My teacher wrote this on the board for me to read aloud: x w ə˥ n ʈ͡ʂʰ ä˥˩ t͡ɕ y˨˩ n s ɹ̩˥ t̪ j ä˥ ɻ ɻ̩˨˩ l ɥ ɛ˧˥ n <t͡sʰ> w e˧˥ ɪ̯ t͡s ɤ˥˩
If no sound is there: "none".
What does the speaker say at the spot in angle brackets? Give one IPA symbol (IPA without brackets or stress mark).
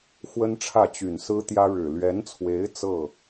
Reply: t͡sʰ